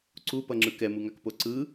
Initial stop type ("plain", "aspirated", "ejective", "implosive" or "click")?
click